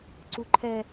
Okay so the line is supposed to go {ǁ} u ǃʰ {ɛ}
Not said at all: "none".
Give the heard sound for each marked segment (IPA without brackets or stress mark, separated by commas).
ǀ, ɛ